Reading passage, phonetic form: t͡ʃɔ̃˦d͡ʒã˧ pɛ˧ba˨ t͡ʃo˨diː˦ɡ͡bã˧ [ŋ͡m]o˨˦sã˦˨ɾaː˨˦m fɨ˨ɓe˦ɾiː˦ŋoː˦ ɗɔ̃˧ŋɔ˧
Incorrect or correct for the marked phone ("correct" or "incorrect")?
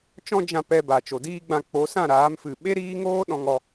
incorrect